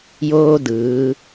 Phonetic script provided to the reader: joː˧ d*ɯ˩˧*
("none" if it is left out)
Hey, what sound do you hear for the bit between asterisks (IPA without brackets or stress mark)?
ɯː˩˧